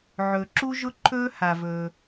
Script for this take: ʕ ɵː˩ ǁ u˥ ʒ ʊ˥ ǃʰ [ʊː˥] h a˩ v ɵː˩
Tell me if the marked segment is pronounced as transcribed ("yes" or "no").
no